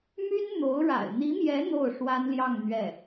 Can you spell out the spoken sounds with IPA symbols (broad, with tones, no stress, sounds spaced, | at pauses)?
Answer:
m y˥ n n̪ o˧˥ ʊ̯ ɻ a̰˨˩ ɪ̯ n̪ i˧˥ m j ɛ˧˥ n̪ o˥˩ ʊ̯ ʂ w a˥ n l j ɑ˥˧ ŋ n̪ ɥ ɛ˥˩